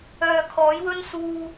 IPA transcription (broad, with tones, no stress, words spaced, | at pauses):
œː˨ kʰɔː˨˥jwɵ˥nsuː˧